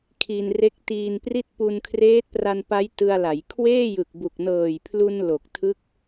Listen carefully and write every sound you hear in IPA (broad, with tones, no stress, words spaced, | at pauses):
kʰi˧nre˦˥k̚tiː˧npri˥˩t̚ pu˧nkʰreː˦˥t̚pra˧npa˦˥j tɯ˧a̯la˩˦j kʰweː˥˩jɯ˨˩k̚bu˨˩k̚ nɤː˨˩jpʰlu˧n lo˨˩k̚tʰɯ˦˥k̚